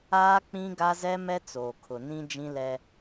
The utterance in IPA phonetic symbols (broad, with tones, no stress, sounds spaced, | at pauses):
aː˦ k͡p ĩ˦ ɡ a˦ z ɛ˦ m ɛ˦ t͡s oː˨ kʰ ʊ˨ n ĩ˦ d͡ʒ ĩ˦ l ɛ˦